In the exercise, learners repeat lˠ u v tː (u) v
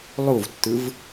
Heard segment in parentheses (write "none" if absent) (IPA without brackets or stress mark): ɯ